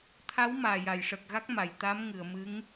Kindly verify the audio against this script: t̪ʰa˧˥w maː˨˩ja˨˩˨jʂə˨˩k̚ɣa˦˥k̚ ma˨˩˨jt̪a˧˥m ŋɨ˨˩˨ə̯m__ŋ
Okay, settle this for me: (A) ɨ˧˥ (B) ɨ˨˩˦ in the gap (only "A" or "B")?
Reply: A